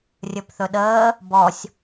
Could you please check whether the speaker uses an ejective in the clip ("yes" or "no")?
no